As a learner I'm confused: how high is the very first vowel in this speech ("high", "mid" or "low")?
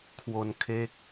mid